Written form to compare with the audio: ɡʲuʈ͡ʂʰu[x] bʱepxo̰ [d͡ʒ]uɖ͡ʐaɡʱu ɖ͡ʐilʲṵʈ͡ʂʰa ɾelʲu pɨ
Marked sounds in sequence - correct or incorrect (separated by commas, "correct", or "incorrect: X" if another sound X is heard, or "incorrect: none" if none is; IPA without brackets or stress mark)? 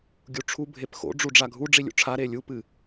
incorrect: none, incorrect: ɖ͡ʐ